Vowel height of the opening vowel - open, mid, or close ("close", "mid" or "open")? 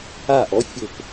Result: open